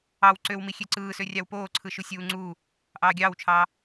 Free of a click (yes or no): no